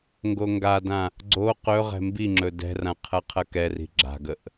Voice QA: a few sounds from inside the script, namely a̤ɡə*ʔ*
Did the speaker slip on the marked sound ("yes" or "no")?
no